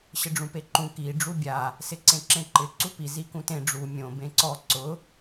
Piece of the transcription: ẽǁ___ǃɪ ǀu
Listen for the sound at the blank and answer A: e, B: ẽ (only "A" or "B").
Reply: B